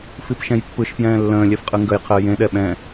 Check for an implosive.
present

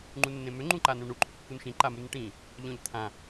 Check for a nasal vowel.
present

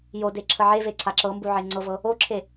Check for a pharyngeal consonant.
present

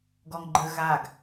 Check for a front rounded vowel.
absent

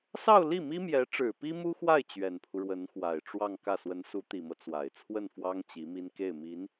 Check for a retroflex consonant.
present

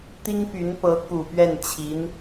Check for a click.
absent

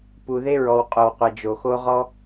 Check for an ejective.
present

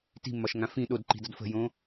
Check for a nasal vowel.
present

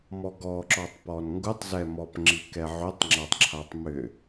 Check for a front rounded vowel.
present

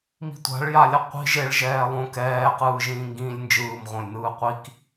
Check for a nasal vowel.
present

